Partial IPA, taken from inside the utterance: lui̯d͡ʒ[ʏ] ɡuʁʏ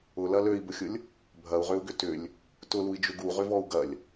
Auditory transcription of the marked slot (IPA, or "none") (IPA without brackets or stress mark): ʏ